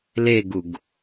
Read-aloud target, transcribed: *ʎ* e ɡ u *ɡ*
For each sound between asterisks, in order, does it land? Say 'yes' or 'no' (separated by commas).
no, yes